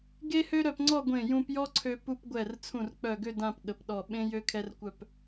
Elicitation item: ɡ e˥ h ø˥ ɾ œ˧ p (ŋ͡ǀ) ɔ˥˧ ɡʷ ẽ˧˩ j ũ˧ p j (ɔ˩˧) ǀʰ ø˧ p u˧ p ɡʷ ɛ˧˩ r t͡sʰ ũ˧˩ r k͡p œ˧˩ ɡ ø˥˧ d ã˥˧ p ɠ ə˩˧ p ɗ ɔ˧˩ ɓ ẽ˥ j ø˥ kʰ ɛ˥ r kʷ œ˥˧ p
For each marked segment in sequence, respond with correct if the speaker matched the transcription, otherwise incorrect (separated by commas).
correct, incorrect